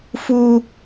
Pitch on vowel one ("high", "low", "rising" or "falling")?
high